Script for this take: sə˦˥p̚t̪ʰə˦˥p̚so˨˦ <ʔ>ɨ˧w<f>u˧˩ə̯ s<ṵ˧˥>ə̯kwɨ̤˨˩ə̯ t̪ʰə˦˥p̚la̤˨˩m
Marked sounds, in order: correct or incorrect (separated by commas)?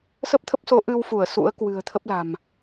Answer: correct, correct, correct